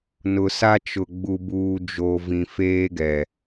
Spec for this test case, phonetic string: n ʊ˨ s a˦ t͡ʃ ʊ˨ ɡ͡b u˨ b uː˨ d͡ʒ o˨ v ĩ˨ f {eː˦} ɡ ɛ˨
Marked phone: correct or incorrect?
correct